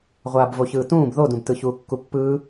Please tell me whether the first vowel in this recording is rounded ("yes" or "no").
no